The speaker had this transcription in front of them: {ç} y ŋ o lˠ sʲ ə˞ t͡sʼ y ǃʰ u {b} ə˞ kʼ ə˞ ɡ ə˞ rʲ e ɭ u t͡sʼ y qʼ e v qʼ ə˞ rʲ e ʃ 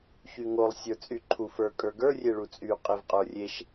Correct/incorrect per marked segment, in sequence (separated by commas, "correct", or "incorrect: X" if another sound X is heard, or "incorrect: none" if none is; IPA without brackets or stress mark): correct, incorrect: f